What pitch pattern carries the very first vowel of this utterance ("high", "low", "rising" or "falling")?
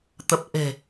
low